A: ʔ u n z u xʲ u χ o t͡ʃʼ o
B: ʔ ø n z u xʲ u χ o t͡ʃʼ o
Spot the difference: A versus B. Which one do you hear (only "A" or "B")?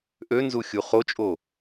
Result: B